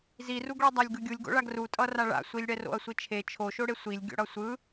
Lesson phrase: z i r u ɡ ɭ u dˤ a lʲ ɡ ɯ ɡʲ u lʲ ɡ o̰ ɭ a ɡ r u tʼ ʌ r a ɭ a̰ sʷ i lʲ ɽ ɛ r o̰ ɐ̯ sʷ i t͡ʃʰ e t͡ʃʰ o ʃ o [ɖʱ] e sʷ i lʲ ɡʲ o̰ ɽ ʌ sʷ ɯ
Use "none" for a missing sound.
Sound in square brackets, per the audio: ɽ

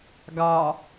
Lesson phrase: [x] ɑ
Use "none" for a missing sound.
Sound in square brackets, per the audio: ɡ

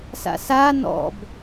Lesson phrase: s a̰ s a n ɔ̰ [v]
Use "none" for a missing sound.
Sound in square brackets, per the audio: b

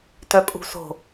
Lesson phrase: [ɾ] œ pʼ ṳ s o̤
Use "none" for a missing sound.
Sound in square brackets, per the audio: t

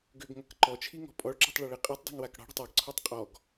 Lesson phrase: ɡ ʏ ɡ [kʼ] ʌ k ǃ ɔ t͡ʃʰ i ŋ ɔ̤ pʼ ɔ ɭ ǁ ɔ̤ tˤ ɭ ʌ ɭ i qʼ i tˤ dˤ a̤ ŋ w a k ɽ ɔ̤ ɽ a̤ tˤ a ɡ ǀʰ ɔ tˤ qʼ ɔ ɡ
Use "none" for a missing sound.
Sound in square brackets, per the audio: ŋ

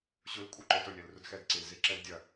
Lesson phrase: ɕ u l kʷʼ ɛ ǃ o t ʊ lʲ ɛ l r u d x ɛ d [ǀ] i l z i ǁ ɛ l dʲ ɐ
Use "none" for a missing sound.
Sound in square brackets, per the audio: ǀ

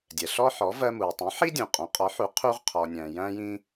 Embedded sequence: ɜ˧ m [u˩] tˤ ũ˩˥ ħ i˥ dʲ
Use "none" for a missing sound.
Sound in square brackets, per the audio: u˩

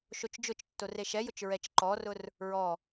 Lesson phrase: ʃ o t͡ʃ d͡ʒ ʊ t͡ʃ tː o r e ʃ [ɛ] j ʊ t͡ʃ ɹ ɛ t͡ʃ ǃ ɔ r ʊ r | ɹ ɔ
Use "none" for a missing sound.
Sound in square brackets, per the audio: ɛ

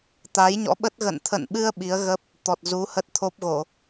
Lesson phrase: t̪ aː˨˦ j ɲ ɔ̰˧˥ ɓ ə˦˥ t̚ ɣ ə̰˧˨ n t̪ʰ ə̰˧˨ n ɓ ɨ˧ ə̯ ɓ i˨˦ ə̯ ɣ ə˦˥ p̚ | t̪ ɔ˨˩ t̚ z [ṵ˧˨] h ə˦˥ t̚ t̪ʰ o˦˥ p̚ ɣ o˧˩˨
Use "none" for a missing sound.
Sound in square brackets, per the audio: u˨˦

